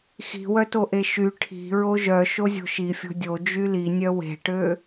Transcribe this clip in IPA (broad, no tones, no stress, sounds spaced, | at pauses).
x i̤ w œ t o ʔ e ʃ y ʈʰ i̤ ɹ o ʒ œ ʃ o zʲ o̤ ʃ i fʲ o̤ dʲ o d͡ʒ y l i nʲ œ w e̤ ʈ ø